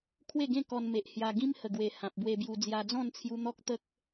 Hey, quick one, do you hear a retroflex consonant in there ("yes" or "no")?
no